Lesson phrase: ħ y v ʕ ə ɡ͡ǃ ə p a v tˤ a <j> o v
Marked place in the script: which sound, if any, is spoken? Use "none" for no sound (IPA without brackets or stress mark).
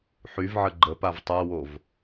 w